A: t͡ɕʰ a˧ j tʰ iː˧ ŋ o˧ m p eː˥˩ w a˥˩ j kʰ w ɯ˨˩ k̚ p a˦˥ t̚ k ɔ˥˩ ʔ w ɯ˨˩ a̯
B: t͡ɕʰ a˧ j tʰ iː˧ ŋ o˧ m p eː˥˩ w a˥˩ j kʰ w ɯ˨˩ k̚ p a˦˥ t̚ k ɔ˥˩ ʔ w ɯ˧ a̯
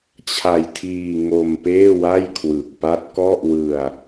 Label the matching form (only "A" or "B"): B